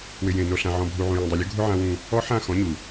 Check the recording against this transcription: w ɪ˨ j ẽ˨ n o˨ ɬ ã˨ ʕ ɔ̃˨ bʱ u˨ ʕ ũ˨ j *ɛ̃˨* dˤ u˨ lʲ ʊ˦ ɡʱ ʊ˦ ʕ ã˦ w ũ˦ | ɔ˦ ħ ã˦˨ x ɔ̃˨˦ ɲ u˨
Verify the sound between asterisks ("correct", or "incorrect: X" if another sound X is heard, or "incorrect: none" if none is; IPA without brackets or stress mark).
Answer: correct